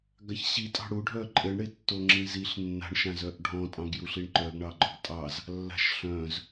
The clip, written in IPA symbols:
ɡ a ç ɕ i tʼ ɑ̤ ɽ u ɖʱ œ ǃʼ ɘ ɳ ɽ e tː o ŋ͡ǁ ĩ z i ɬ nː a̤ ɳ ʃ ã z œ ʔ ɖʱ ɔ̃ tʼ ɑ̃ ɡ j u ɬ i ɳ ǃ œ ɡ ɳ ɑ ɡ͡ǃ ɔ ɡ tʼ ɑ z | lː a̤ ʃ ɬ œ̃ z

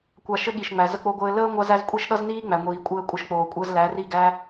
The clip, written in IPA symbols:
kʷ a˧ ʃ ɘ˦ ɠ i˨ ʃ ŋ͡m æ˨ z ə˦ k͡p o˦ ɡʷ ɘː˦ l əː˦ ŋʷ a˦ z æ˦ z kʷʼ i˦ ʃ ɗ ʌ˦ z n iː˦ ŋ͡m æ˨ ŋʷ iː˨ kʷʼ ɘː˧ kʷʼ ɘ˧ ʃ k͡p oː˨ kʷʼ əː˧ z l æ˨˦ r i˦˨ ɡ æ˦

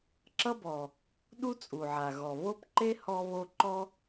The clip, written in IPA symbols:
ǁ ʌ˥ b ɔ˩ | ɗ u˥ t͡sʼ u˩ ʕ a˩ ɣ ɔ˩ β o˥ p ǃ e˥ h ɔ˥ β o˥ ǃ ɔ˥

